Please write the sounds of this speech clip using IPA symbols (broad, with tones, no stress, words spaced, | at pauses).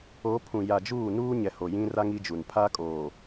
o˨˦pʰũ˨ ja˨d͡ʒuː˦˨nuː˦ɲɛ˨ ho˨ jĩ˦ra˦ŋ i˦d͡ʒu˨n pʰa˦kʼoː˨